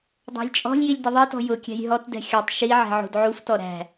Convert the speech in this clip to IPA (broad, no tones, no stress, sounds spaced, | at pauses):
dˤ æ̤ lʲ t͡ʃʼ ɔ̤ lʲ j i lʲ d ɪ ðˤ i t ɔ̤ j ʊ kʲ æ̤ j ɦ ɔ t d ɛ̤ xʲ ɔ tˤ ʃ i ʕ ɛ̤ ʕ ṳ d ʕ u f t ɔ ɾ æ̤